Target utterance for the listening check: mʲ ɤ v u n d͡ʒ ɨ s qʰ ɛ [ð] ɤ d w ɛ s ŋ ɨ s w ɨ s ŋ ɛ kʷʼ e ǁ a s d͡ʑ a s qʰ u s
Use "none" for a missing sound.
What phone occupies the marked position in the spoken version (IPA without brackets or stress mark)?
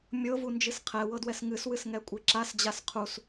w